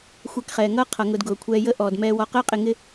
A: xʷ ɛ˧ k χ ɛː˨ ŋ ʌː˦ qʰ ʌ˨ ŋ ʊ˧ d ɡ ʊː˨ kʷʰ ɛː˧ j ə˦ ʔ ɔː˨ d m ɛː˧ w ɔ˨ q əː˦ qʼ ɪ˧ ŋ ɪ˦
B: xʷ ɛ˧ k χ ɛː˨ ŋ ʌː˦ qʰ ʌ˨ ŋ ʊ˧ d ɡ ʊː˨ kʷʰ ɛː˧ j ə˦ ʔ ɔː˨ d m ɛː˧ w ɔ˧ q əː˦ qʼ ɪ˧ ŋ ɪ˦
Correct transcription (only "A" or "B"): B